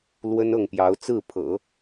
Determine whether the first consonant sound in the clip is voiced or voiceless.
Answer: voiced